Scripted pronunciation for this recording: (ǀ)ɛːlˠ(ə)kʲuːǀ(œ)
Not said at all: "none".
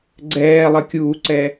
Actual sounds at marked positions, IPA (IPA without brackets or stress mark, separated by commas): ɡ͡ǀ, ə, ɛ